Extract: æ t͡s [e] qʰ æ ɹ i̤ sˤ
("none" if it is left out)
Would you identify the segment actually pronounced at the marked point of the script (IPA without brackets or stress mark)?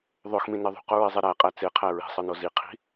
e